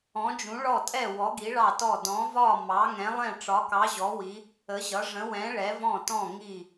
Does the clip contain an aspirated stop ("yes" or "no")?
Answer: no